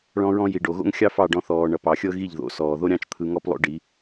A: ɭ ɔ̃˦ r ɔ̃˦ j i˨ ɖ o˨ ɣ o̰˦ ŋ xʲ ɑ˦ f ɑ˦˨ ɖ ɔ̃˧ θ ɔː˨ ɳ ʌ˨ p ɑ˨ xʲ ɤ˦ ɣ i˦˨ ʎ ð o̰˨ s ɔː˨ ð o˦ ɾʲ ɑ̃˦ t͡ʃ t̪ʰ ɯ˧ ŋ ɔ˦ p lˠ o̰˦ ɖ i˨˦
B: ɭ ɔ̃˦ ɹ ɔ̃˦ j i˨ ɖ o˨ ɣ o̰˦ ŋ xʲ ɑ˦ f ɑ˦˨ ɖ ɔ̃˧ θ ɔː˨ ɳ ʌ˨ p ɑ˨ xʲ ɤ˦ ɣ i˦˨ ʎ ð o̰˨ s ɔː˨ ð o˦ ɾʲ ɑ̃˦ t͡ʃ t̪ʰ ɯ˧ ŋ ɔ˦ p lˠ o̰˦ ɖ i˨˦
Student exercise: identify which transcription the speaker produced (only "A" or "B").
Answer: B